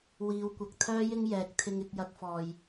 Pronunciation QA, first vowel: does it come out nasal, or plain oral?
oral